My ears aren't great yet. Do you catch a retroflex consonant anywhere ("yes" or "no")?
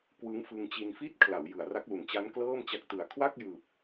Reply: no